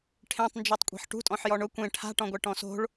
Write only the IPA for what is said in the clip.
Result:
ʈʰ ẽ tˤ n d͡ʒ i tˤ kʷʼ e̤ ħ ʈ ṳ tʼ ɔ̃ ħ j ɔ ɳ ʊ kʷ ẽ ʈʰ a̤ ʈ ɔ̃ ɡʷ ɛ ʈ ɔ̃ s o̤ ɭ

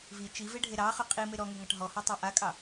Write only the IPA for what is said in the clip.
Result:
v i t͡ʃ i v e ɖʱ e ɾ ɑ χ ɵ qʼ i m e ɾ ɔ ŋ e ŋ ɑ ʈ ɦ ɔ h ɔ tˤ ɑ ʔ a kʼ ɑ

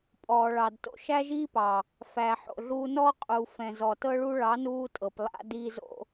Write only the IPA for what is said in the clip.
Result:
pʼ ɔː˨ ɭ ɑ˨ d t o̰˧ ʃ æ˦ ʒ iː˦ p ɑ˨ | f æ˨ ħ o̰˨ ɮ uː˧ n ɔː˦ qʼ u˨ f ɛ̃˨ z ɔ˨ t ɤ˦ ɭ u˦ ɭ ɑ˨˦ n uː˧ tʼ ɤ˨ p lˠ a̰˦ d iː˧ z o̰˧

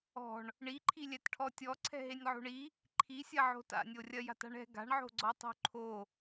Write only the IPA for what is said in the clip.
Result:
ɔ̤ ɳ | ɳ i ǃʰ i lʲ ɛ t ʈʰ ɔ tʲ ɔ ǀʰ ɛ̤ ɦ e nʲ ʕ o̤ ɳ i | ǃʰ i sʲ ɐ ʕ o̤ t a̰ nʲ o rʲ ɐ j a̤ t a̤ ɳ ɛ̤ ɡ a̤ ɳ ʕ o̤ ɡ͡ǀ ɔ tˤ o̤ ǃʰ o

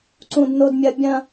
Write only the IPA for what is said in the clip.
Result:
ǀ ũ˦ d n o˦ d mʲ ɐ˦ bʲ ɐ̃˦

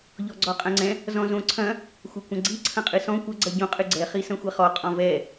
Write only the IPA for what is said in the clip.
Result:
ʎ ɔ ɡ͡ǀ ɔ qʼ ɐ̃ ŋ͡ǀ ɛ̃ | z ɔ̃ z õ ǀʰ ɐ̃ | xʷ ɐ kʷ ɐ̃ ɡ͡ǀ i ǀʰ ɐ̃ qʼ ɨ s ɔ̃ kʷ ɐ ɡ͡ǀ ɐ ɟ õ qʼ ɨ ɡ͡ǀ ɛ χ i s ɐ̃ xʷ ɛ χ ɔ qʼ ɔ̃ v ɛ

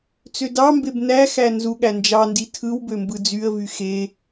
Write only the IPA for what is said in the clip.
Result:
t͡s ø d ɑ m b e b n æ x æ n z u ɠ æ n d͡ʒ ɑ n d i tʰ ɯ w b ø m b ɯ d͡z y ə̯ v y x e

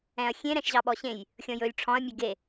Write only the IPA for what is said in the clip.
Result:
ɛ̃ ɐ̯ xʲ ẽ ɾ ɛ̃ ʃ ʑ ɑ ɓ ɔ ɕ ẽ j | xʲ ɔ̃ j ɵ lʲ ʈ͡ʂʰ ɔ̃ ɐ̯ mʲ e ɡ e

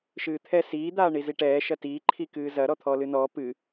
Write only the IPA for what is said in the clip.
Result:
ʃ ɨː t̪ʰ ɛ s iː d̪ aː ɳ i z i ʈ ɛː ʃ ɐ t iː ǃʰ i k ɨː z ɐ ɾ ɔ t̪ʰ ɔː l ɨ n ɔː p ɨ

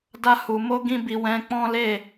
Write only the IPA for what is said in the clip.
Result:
d a˧ h u˨ m o˧ ɡ ĩ˦ b i˧ w ɛ̃˧ k͡p ɔ̃˦ l e˦˨

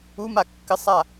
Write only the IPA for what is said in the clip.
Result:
u m a kː ɘ sˤ a

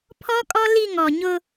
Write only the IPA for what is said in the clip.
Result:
pʰ ɔ˦ kʼ ɔ˦ l i˦˨ ŋ ɔ˨ ɲ ʊ˦

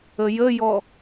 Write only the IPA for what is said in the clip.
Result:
ə j ə j ɔ

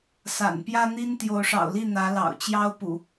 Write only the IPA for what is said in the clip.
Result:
s a̰˨˩ n p j ä˦ n̪ i˦ n t̪ j o˨˦ ʊ̯ ʂ ɑ̰˨˩ ʊ̯ l i˥˨ n̪ ä˨˦ l ɑ̰˨˩ ʊ̯ t͡ɕ j ɑ˦ ʊ̯ p ṵ˨˩

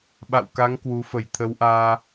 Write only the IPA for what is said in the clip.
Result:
ɓ a̰˧˨ w k a˨˦ ŋ k w u˨˦ f ə˧˩ j t̪ʰ ə˨˦ w ʔ aː˧

